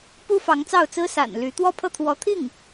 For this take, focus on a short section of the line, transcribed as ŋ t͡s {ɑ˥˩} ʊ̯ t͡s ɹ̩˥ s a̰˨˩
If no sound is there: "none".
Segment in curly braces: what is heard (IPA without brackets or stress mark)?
ɑ˥˩